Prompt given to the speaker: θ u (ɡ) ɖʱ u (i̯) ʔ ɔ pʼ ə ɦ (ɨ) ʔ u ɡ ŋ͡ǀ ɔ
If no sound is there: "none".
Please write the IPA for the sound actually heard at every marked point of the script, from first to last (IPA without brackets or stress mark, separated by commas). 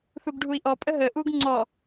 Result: ɡ, i̯, ə